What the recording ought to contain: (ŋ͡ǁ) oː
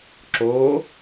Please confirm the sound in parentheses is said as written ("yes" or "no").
no